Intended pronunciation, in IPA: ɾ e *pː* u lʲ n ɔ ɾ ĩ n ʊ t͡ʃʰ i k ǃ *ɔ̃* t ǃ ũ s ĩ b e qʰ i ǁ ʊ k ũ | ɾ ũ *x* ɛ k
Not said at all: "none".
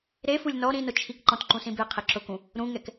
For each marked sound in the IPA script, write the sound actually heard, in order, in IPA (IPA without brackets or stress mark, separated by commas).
f, ɔ̃, ŋ